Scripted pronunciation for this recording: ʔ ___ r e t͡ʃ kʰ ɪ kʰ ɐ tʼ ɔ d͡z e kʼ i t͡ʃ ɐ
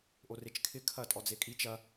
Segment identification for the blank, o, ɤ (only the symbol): o